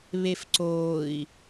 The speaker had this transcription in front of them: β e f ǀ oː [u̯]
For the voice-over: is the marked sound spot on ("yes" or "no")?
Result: no